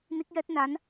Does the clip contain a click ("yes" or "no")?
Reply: no